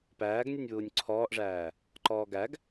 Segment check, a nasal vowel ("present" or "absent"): absent